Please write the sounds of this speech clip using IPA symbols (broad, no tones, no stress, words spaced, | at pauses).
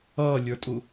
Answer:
ʌːlʲə˞tʼu